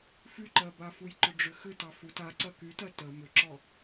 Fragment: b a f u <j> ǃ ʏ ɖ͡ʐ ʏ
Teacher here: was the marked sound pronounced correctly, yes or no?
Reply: yes